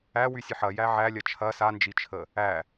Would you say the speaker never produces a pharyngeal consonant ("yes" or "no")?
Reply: no